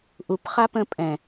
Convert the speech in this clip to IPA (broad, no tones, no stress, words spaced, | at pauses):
ʔupχa pə̃ pʼɛ̃